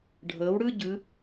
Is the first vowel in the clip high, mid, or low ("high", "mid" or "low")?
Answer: mid